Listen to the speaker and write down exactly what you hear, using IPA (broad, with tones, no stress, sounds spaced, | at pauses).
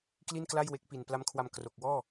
k l i˥˩ n k l a˥˩ j w e˦˥ k̚ p i˨˩ n p l a˦˥ m kʰ w a˧ m k r o˨˩ k̚ w ɔː˥˩